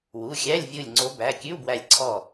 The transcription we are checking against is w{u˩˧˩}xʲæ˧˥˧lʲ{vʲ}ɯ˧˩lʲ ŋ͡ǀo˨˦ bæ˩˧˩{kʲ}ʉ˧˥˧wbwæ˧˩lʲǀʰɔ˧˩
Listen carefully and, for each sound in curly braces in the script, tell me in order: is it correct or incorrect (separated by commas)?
correct, correct, correct